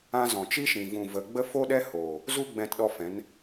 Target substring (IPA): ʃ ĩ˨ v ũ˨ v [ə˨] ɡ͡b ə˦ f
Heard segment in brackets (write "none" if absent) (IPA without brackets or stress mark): ə˨